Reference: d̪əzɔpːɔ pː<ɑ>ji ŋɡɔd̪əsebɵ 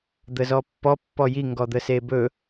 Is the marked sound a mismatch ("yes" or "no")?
yes